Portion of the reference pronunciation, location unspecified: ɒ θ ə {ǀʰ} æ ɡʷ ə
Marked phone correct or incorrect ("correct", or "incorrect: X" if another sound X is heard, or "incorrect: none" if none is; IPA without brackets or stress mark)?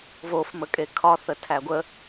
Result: incorrect: tʰ